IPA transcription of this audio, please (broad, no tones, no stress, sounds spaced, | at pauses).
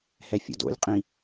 h ɛ fʲ o̰ d o̰ lʲ qʼ ĩ